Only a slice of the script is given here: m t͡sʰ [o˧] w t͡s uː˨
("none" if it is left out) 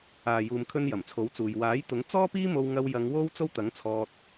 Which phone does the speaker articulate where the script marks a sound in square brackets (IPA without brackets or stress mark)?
o˨˥